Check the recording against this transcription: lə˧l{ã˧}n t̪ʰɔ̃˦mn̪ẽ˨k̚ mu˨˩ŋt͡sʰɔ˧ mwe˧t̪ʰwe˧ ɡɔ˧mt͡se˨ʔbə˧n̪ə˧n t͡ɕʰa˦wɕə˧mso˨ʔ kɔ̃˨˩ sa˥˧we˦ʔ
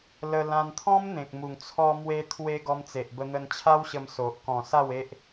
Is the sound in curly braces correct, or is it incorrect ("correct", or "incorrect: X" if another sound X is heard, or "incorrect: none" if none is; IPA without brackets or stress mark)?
correct